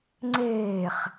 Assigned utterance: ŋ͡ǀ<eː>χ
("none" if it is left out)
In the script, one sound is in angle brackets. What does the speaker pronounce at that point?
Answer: eː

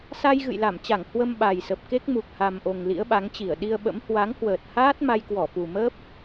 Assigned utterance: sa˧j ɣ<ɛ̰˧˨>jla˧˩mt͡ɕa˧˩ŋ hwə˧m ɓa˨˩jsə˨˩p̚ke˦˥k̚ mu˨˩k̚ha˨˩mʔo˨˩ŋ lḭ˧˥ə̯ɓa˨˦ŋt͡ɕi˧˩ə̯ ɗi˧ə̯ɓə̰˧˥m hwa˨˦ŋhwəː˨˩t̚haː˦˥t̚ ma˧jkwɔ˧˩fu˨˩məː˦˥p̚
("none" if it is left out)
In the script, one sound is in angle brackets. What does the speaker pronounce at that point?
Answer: ɨ̰˧˨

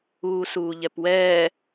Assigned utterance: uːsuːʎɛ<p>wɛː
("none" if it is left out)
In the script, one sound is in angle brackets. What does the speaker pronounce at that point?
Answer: p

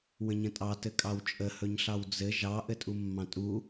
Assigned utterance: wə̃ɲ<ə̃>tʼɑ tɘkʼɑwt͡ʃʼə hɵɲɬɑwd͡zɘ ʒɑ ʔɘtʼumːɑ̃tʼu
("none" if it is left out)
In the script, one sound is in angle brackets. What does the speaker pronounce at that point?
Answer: ə̃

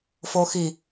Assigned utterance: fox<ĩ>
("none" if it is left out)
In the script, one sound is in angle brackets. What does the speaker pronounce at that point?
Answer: i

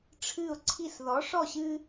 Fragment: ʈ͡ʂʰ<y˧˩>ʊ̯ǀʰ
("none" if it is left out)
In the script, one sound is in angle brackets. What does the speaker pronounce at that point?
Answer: ɨ˧˩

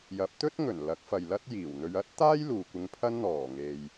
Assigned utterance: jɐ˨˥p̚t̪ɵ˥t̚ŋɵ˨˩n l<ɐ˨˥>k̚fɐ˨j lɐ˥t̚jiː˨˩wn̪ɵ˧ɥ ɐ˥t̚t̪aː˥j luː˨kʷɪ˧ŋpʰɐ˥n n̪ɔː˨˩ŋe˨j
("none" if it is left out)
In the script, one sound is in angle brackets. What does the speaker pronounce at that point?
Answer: ɐ˨˥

